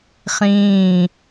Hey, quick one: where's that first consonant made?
uvula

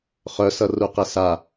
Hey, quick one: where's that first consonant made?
uvula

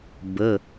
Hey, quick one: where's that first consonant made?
lips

